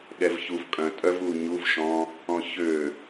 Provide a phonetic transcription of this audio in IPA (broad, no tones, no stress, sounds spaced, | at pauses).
ɠ ɛ v ç u v kʼ œ̃ tʼ œ v u ɲ u v ʃ ɔ̃ | ɔ̃ ç ø